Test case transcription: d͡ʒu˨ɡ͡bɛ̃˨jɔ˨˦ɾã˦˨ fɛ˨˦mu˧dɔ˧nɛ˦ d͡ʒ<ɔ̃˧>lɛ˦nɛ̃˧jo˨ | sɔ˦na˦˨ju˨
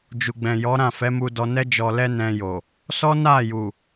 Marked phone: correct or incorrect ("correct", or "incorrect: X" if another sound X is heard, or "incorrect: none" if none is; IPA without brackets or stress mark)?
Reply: incorrect: ɔ˧